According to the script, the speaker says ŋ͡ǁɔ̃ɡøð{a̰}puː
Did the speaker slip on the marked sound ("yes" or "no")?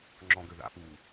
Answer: no